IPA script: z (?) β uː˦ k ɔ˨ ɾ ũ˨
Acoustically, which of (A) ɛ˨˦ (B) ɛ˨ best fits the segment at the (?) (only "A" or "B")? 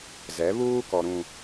A